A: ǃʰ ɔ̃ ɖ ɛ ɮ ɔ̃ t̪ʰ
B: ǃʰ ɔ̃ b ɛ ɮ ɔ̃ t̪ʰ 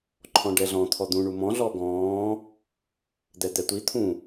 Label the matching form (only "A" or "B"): A